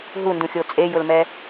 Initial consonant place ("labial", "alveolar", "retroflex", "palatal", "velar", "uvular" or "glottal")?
glottal